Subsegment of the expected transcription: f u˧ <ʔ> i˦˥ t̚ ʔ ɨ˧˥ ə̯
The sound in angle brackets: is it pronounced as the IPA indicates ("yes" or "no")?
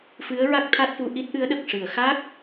yes